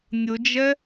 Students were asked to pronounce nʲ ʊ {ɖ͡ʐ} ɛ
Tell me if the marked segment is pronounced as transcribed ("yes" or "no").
no